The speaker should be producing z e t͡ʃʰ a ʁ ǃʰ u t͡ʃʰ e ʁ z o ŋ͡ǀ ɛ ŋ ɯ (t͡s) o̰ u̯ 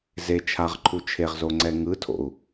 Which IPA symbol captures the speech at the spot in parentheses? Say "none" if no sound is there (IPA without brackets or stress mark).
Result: tʰ